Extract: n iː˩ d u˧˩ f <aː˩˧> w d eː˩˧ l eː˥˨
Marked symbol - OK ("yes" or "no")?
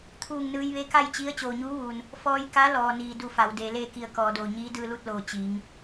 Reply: no